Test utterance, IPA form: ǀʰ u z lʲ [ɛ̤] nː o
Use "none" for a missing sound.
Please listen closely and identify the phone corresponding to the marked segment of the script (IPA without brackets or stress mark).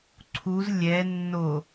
ɛ